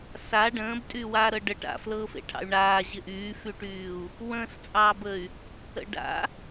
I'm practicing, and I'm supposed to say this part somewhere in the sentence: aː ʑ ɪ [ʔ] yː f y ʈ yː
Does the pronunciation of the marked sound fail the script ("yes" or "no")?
no